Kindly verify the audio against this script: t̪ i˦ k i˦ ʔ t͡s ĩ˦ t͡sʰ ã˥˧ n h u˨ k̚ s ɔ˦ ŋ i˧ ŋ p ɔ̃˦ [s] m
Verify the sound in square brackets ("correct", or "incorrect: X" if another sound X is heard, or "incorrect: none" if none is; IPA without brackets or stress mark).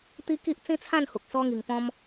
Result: incorrect: none